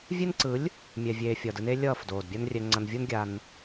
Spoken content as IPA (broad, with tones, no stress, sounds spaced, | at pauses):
vʲ e˦ n ǀ ɯ˨˦ lʲ | mʲ ɛ˨ vʲ eː˨ fʲ ʌː˨ d ɯ˦ n e˦ lʲ ʌː˦˨ f d oː˨ d bʲ a˦ n rʲ ɛ˧ ŋ͡ǀ ʌ˧ n vʲ u˦ n ɡʲ a˧ n